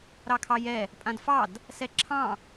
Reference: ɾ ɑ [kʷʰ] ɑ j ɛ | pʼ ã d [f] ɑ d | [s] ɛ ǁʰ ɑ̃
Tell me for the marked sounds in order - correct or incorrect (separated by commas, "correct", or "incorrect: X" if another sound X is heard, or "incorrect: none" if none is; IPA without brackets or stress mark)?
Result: incorrect: kʰ, correct, correct